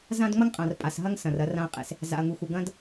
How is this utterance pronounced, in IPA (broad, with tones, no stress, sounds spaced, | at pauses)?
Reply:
z ã˦ d ŋ͡m ɐ˦ ŋ qʼ ã˨ r pʼ a˨ s ɦ ɐ˦ ŋ s ɐ̃˨ r ɐ˧ r ã˧ ɐ̯ qʼ ḛ˨ s | z a̰˨ ɐ̯ ŋ u˨ x u˨ ɡ ɐ̃˦ d